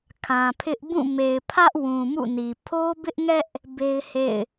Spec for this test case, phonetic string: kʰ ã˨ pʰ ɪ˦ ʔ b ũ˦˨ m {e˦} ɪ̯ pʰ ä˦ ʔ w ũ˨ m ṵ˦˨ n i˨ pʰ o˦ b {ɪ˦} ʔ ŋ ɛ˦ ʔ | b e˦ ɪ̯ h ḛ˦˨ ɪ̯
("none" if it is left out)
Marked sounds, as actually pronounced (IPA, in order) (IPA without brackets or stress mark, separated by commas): e˨, ɪ˦